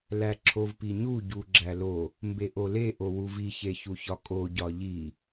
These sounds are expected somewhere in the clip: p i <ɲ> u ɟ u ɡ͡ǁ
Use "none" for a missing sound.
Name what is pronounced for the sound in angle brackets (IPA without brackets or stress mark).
ɲ